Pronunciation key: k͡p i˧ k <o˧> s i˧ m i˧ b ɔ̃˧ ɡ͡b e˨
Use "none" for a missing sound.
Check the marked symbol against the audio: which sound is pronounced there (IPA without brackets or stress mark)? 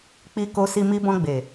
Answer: o˧